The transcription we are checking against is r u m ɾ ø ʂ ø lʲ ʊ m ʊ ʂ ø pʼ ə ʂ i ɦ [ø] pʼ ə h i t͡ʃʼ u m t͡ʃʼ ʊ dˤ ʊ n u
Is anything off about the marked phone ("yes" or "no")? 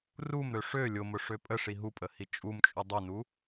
yes